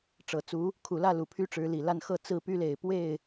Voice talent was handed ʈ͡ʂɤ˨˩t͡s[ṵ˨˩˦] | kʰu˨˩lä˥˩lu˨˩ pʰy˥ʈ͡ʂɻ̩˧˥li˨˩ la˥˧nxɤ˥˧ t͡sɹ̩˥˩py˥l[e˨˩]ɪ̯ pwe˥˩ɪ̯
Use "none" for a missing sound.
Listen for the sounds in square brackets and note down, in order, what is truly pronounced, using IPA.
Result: u˧˥, e˨˩

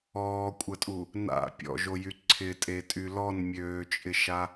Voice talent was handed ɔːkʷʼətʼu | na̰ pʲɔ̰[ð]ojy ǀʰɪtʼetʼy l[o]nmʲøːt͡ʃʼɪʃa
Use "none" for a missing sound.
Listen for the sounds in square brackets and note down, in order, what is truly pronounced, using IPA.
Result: ʒ, ɔ

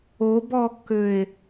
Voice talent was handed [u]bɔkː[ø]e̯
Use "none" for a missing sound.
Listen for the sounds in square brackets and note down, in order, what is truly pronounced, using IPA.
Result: o, ø

